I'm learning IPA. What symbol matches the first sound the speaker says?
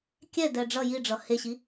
kʲ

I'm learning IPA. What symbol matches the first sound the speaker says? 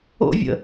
o̰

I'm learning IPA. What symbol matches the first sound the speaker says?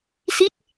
s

